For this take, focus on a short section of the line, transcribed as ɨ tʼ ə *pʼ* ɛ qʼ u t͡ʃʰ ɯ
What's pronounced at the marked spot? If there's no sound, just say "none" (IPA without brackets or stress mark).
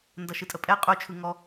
pʼ